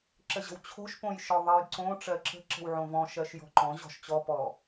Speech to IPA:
ǁ ə ʑ ə̤ w t͡ɕʰ o̤ ʃ p õ j ʃ ɔ ðˤ ə j ǀ õ ʈ͡ʂ ɜ ǁ ə̤ ǁ ə̤ w ʕ õ v ɔ̃ ʃ ɜ ʃ j ɔ̤ ǃ ɔ̃ ʑ ɔ̤ ʃ t͡ɕ ɔ p ɔ

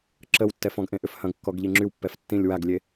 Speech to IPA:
ǁ ə w tː ɛ f ɔ̃ ɡ ʔ ẽ ʔ ʏ f h ɐ̃ ɡ kː ɔ ɡ ʎ i ŋ͡ǁ y w pː ɛ f tː ĩ lʲ w a ɡ lʲ e

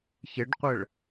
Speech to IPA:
ç e ɖ qʷ ə ɭ

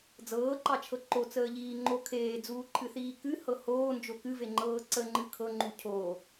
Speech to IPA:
d͡z ɤː ǃ ɑ t͡ʃʰ ɤ ǃ o t͡s əː ʎ iː ŋ͡ǃ o kʰ eː d͡z uː ǃʰ ɨ θ iː k ɨ h ɤ h oː n d͡ʒ o k ɨ v e ŋ͡ǃ ɤː ǀ ə ŋ͡ǃ ɨ kʰ ɤ ŋ͡ǃ u cʰ o

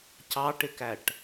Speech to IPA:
c ɑ ʈ ɪ k æ ʈ

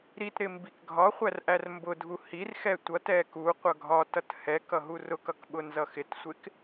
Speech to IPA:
ɾ i t ɾ ɪ m b i k ɡʱ ɒ χʷ æ r ʔ æ r m b ʊ dʱ u h i r x ɛ tʷ ʌ t ɛ k u qʷ ʌ ɡʱ ɒ t ʌ t h ɛ k ʌ ɦ u r ʊ k ʌ k ɓ ʊ n z ʌ x ɪ t sʷ ɪ k

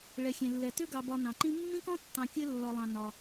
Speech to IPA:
ɭ ɛ˩ xʲ ẽ˩ lː ɛ˩ t ʏ˦ ɡ ɑ˨ b ɒ˨ n ɑ̃˩ ǃ ĩ˦ mː ĩ˥ k ɔ̃˥ tː ɑ̃˨ kʲ ɘ˦ lː ɒ˨ lˠ ɑ̃˩ n ɒ˩

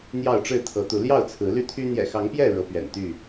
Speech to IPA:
n̪ j ɑ˥˨ ʊ̯ ʈ͡ʂ ɻ̩˥˨ t̪ʰ ɤ˨˦ t̪ u˨˦ l j ɑ˥˨ ʊ̯ t͡sʰ ɹ̩˨˦ l y˦ t̪ʰ y˦ n̪ j ɛ̰˨˩ x ɑ˨˦ ŋ p j ɛ˥˨ ɻ ɤ˨˦ p ɥ ɛ̰˨˩ n t̪ y˥˨

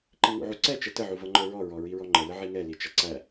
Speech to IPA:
ǃ i ŋ ṵ ʕ u ǀ ɛ t͡ʃ ə t ə ʕ u v ʌ ŋ͡ǃ ə˞ ɹ ɔ ɹ ɔ ɹ i ɹ ɔ ŋ͡ǃ ə l ə ʕ i ŋ ɛ l i t͡ʃ ʌ ǀ æ

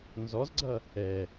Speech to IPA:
n z ɔ z ɡ͡ǀ ʌ | ɛ

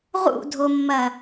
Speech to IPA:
ʁ ṵ dʱ o mː ɐ

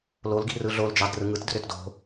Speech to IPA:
l o l ɡ i̤ r ɯ ɮ o l d͡ʒ ɑ d r ɯ ŋ ɯ t d r ø t d o̤

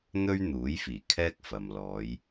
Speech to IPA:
n̪ ɵ˥ ɥ n̪ uː˨˥ j f iː˨˩ kʰ ɛː˥ k̚ f ɐ˨ m l ɔː˨˧ j

